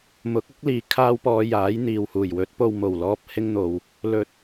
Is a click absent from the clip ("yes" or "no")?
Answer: yes